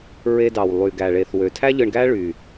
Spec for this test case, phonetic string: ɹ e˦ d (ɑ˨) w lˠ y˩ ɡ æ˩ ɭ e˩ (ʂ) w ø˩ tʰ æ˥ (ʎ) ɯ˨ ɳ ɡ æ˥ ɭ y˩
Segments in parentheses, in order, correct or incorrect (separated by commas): incorrect, incorrect, correct